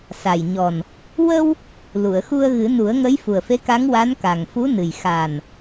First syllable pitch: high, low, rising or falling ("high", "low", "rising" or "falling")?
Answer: low